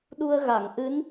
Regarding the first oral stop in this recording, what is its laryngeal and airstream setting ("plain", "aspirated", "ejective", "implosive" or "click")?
implosive